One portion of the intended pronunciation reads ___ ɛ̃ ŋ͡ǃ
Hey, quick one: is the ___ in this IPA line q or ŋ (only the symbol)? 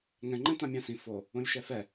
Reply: ŋ